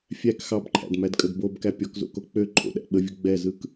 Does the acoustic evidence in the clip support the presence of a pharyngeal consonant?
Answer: no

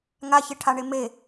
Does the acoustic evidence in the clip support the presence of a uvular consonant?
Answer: no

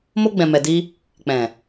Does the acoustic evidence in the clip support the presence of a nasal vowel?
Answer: yes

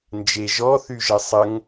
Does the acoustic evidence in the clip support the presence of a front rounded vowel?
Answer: yes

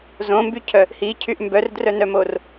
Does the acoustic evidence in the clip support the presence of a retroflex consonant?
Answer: no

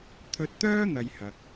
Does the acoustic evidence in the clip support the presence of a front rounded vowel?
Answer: yes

